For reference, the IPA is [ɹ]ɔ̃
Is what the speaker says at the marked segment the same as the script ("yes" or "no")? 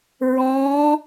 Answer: yes